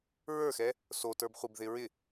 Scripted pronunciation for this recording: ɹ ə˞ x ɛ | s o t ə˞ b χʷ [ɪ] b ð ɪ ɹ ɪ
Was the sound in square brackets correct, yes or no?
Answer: yes